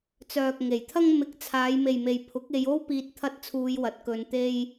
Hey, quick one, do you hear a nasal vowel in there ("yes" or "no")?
no